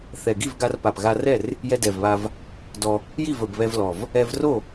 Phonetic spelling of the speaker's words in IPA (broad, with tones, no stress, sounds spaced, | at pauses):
θ ɛ˨˩ ɡ i˥˨ v ɡ a˧ r p a˨˩ p ɣ a˧ r ɛ˥˨ r | j ɛ˧ d ɛ˨˩ v β a˧ v | d ɔ˧ | j i˥˨ v ə˨˩ b β ɛ˧ v l ɔ˨˩ v | ɛ˧ v r o˥˨